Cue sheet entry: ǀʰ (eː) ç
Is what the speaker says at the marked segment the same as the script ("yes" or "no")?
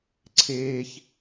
yes